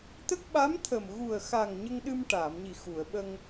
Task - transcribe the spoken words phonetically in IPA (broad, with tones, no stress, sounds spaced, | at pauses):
t̪ ə˦˥ k̚ ɓ a˧˥ m t̪ʰ ə˨˩ m ɣ u˨˩ ə̯ x a˨˩ ŋ ɲ ə˧ ŋ ɗ ɨ˧ m ʈ aː˨˩˨ m ɲ i˨˩ x u˨˩˨ ə̯ ɓ ə˧ ŋ